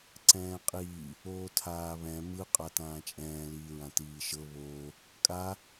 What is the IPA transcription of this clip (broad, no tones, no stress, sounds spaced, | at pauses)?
ǀ ɛ̃ː qʼ iː | oː tʰ aː β ɛ̃ m ɯ qʼ a t ãː t͡ʃʼ ɛ̃ː l iː ɹ ã t iː ʃ ɤ β oː | kʼ a